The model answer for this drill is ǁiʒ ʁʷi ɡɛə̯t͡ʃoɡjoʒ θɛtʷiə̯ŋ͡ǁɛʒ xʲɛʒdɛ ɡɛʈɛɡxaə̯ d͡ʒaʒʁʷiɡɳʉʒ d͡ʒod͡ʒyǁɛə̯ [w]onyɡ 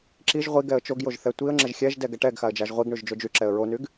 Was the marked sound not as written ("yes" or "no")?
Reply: yes